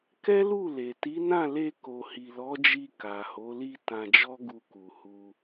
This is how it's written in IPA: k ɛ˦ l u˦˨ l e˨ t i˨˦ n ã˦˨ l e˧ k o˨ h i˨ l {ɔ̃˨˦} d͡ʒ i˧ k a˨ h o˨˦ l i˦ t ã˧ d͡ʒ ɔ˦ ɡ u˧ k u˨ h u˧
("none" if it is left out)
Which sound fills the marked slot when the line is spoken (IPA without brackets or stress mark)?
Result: ɔ˨˦